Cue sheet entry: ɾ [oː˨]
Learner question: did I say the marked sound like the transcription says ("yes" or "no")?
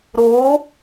no